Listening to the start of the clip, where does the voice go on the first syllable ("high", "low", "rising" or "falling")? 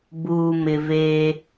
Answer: low